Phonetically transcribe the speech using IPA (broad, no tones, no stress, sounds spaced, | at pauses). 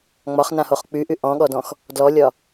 ŋ͡m ɒ χ n ã h o χ k͡p y ʔ y ʔ ɔ̃ ɠ ɔ d ɔ̃ x | d l ɔ lʲ ɒ